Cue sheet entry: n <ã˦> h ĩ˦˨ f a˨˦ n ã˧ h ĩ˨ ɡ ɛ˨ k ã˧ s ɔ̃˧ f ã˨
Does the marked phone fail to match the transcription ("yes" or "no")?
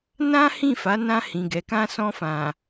no